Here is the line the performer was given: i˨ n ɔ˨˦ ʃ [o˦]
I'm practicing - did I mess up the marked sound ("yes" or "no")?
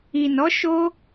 no